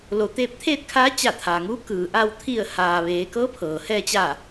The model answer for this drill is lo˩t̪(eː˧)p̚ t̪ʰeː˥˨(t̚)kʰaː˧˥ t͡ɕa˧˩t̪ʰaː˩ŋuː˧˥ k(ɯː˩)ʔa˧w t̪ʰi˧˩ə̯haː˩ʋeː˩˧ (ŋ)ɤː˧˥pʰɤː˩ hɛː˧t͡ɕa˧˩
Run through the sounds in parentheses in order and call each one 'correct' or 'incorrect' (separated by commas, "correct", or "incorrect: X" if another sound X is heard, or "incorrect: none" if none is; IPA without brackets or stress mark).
correct, correct, correct, incorrect: k